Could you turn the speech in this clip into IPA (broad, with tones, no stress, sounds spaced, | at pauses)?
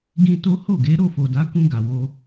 ɡ ĩ˧ t o˦ h o˦˨ ɡ e˨˦ ɾ o˦˨ f o˨ d a˨˦ k ũ˧ ɡ a˨ w o˧